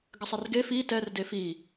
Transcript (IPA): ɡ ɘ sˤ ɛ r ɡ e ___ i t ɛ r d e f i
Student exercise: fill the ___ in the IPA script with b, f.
f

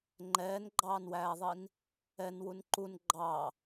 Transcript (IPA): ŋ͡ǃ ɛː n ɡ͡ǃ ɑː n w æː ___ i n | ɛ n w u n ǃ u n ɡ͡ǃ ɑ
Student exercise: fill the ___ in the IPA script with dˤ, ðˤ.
ðˤ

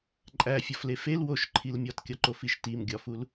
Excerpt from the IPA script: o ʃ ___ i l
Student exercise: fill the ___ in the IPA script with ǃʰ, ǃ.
ǃʰ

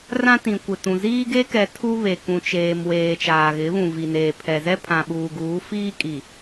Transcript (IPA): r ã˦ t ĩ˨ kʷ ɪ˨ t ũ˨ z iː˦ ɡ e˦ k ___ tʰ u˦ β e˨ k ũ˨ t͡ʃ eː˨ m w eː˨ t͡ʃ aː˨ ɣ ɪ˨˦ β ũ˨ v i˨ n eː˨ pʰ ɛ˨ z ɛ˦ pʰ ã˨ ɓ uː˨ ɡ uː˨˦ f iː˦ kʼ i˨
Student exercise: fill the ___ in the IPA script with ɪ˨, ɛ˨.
ɛ˨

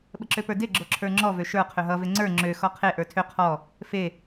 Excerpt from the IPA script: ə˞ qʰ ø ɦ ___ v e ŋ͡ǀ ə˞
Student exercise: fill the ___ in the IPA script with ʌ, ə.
ʌ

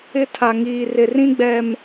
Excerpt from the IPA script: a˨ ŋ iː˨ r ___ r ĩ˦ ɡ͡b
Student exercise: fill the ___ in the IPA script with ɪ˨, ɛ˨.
ɪ˨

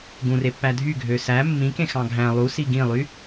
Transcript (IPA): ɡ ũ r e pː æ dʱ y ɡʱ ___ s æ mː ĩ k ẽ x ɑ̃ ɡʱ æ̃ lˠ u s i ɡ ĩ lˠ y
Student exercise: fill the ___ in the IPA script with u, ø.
ø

